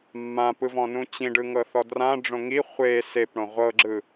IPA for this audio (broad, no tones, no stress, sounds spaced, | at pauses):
mː ã p ɯ v ɔ̃ n ũ t͡ɕ ĩ ɖ ɯ ŋ ɤ θ ɔ d r ã ɖ͡ʐ õ ŋ i χʷ e s e p ɽ õ ʁʷ ɤ ɡ͡ǁ ɯ